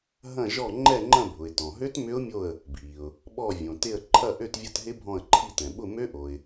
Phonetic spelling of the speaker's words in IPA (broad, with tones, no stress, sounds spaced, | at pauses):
ɦ ɐ̃˦˨ ʒ ɔ˦˨ ŋ͡ǃ ɛ˦˨ ŋ͡ǃ ɐ̃˦˨ bʱ ʊ˩ ɪ̯ t ɔ̃˩ ɦ ø˦˥ t m ʏ˦˥ ʊ̯ mʲ o˦˨ ə̯ | bʱ i˩ ʊ̯ | ɓ ɔ˦˨ vʲ õ˩ t ɪ˦˨ ə̯ ǃʰ ɐ˦˨ ʔ ø˦˨ t vʲ ɐ˦˨ t ɦ ɪ˦˥ bʱ ɔ̃˦˨ ə̯ ǃʰ i˦˨ t ɛ̃˩ ɓ ʊ˦˨ m ø˦˥ ʔ o˩ ɪ̯